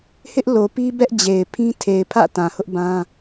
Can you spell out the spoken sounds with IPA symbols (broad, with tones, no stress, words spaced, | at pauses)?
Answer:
hɪ˦ʔlo˨pi˦ bɛ˦ʔ d͡ʑe˨ɪ̯pʰĩ˦ tʰe˨ɪ̯pʰä̰˦˨ tã˨hʊ˦ʔbã˦